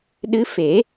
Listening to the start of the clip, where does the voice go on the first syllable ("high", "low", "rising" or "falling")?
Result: rising